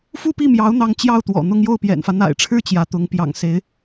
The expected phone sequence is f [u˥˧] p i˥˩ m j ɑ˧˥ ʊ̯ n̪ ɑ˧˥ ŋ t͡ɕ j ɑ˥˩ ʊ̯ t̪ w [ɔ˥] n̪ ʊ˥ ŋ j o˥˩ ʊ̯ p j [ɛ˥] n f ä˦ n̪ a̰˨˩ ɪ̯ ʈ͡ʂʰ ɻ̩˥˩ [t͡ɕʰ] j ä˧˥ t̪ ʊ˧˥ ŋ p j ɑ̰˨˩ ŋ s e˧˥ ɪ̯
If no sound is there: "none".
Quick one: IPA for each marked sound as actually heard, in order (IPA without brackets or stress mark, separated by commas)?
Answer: u˥˧, ɔ̰˨˩, ɛ̰˨˩, t͡ɕ